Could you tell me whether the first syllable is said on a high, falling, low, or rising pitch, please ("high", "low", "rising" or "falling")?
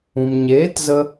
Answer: low